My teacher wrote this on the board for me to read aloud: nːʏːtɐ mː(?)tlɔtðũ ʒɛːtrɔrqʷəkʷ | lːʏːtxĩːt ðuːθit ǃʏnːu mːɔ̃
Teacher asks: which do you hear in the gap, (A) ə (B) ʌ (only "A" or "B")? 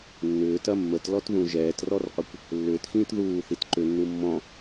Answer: A